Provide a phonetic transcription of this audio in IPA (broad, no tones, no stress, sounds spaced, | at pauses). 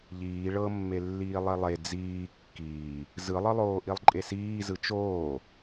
ʎ iː ɭ ɤ mː e lː iː lˠ i lˠ e d͡z iː kː iː | z ɯ lˠ ɯ lˠ oː ʔ i lˠ ǃʼ e s iː z ɯ t͡ʃ oː